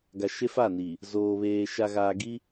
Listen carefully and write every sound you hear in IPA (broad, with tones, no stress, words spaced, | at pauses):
ɡa˨ʃe˦fa˦˨ni˨ | zoː˨βeː˨ ʃa˨ɣaː˨ɡi˦